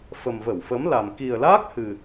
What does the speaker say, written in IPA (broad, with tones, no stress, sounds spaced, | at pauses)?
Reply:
f ə˨˩ m v ə˧˩ w f ə˨˦ m l a˨˩ m k i˨˩ ə̯ l aː˦˥ k̚ h ɨ˨˩